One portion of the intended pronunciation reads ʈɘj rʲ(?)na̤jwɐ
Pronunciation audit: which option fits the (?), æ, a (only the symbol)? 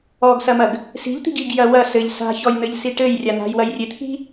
a